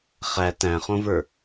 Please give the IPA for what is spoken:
χ æ t æ̃ χ õ v ə˞

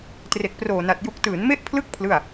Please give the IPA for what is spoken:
t r e˨˩ k̚ p r oː˨˩ n a˨˩ t̚ j u˨˩ k̚ t ɯː˩˦ n m e˦˥ ʔ pʰ l ɯ˦˥ k̚ pʰ l ɯ˥˩ a̯

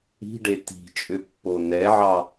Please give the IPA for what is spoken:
i̤ ɖ e t i̤ t͡ʃʼ ʏ pː o n ɛ ʕ ɑ

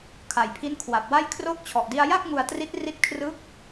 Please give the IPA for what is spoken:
kʰ a˩˦ j pʰ i˦˥ n kʰ w a˨˩ p̚ w a˥˩ j kʰ r oː˦˥ k̚ t͡ɕʰ ɔ˨˩ ʔ d i˧ a̯ j a˥˩ k̚ ŋ u˧ a̯ t r i˦˥ t̚ r i˦˥ t̚ kʰ r ɯ˦˥ k̚

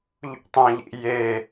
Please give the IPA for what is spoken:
ʎ ṵ tˤ ɐ̃ ʎ ḭ j e

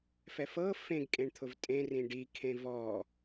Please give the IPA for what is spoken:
f ɛ f ɤ f ẽ ɡ kʼ ẽ ɳ t̪ʰ ʊ v tʼ ẽ r ĩ ɖ i kʰ ẽ v ɔ

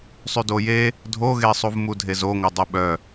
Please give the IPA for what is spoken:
sˤ y d o j e | dʱ o ɣ e sˤ u v m u dʱ e z o ŋʷ œ dˤ u ɓ œ

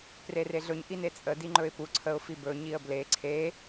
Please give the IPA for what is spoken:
p r e r e ɮ ɵ ɲ ʔ i n e t͡sʼ ə d i ŋ͡ǃ ɵ ɪ̯ p u ǀʰ ə ʊ̯ f i b ɵ ɲ i ə̯ b l e ǀʰ e

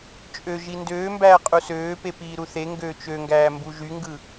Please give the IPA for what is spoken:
t͡ʃʼ ø ʒ i n d øː m b æː qʼ u s øː p e p iː ɾ u θ e ŋ ɡ øː t͡ʃ ø ŋ ɡ æː m b u ʒ y ŋ ɡ ɯ

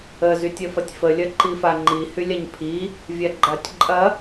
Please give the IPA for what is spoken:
ə z y tʲ ɐ f ɐ tʲ f ə lʲ ɐ ǃ i f a ŋ͡ǃ i h y lʲ a ɲ pʰ i | vʲ a ɡ͡ǃ a tʲ ǃʼ ɐ

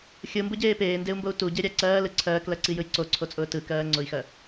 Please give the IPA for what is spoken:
xʲ ɯ m b ʊ ɟ eː p eː n d e u̯ m b o u̯ t u ɟ e ɾʲ æ ǀ ɜː l ɯ ǀʰ ɜː k l ɜ ǀ i j ɯ j ǀ o ǀʰ o t͡sʼ ʊː t ɯ k ɜː ŋ͡ǀ ʊ i̯ x ɜ

